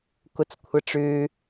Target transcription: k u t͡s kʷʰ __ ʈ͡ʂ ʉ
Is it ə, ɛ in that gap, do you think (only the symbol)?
ə